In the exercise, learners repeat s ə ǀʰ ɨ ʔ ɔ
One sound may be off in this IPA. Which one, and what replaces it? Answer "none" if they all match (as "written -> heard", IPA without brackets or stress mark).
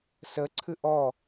none